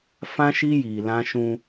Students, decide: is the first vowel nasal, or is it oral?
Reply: nasal